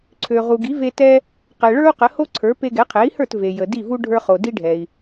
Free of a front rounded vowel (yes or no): no